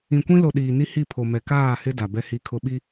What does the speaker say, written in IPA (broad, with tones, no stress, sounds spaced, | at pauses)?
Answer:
ĩ˨ kʷ ĩ˦ l o˨ ɗ iː˨ n i˦ h i˦˨ pʰ o˨ m ɛ˨ k aː˦˨ h ɪ˦ d a˨ b ɛ˦ h i˦ kʰ ʊ˦ ɓ i˦